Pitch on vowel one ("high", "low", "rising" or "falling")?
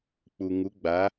low